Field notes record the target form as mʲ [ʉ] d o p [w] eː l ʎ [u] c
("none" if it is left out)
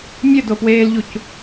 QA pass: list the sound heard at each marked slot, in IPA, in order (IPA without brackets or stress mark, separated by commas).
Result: ɘ, w, u